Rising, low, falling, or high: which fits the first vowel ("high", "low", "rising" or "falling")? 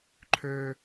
low